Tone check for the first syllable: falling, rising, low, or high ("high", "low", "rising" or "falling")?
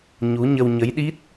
rising